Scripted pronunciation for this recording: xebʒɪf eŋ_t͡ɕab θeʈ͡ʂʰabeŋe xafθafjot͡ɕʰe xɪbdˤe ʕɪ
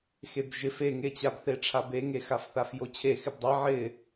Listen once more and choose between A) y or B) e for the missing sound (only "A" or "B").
B